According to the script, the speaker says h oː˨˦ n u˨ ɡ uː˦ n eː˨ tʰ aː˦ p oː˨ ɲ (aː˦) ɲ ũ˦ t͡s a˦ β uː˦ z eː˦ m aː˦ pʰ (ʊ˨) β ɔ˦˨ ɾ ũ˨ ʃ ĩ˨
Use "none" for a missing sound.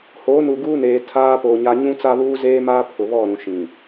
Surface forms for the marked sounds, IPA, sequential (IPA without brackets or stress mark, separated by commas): a˦, ʊ˨